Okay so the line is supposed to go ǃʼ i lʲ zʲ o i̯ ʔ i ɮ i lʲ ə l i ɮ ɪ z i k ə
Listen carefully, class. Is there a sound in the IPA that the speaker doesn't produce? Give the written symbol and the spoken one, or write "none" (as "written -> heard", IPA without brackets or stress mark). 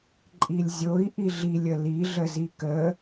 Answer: ɪ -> ə